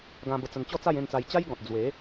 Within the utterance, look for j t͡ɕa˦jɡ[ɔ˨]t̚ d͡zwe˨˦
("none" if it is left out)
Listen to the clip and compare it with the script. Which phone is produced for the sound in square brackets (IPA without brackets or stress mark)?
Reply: ɔ̃˨